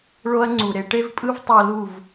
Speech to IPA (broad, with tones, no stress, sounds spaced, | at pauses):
ɭ o˧ ɐ̯ ŋ͡ǀ u˨ ɾ e˧ ʈ e˦ v pʼ ɯ˦ v tˤ o˧ l u˦˨ v